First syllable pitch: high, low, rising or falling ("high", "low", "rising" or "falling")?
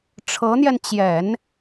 rising